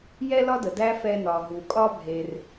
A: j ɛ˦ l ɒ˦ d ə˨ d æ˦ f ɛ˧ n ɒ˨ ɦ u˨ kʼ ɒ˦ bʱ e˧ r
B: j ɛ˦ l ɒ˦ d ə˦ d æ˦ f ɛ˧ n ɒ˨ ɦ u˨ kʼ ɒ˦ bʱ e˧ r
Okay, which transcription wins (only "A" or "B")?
A